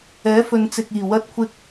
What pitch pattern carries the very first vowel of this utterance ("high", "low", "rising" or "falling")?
rising